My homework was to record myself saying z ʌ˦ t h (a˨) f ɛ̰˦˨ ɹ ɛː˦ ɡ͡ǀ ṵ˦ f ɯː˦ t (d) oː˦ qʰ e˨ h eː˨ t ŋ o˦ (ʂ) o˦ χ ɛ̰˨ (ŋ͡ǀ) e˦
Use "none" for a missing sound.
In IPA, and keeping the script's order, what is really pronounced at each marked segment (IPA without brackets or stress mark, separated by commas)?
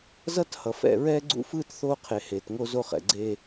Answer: ʌ˨, θ, z, ɡ͡ǀ